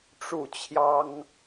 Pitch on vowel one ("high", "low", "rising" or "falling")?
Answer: falling